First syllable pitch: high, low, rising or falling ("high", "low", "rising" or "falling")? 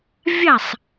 falling